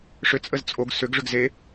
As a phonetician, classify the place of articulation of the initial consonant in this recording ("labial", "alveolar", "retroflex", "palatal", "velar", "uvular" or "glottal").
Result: retroflex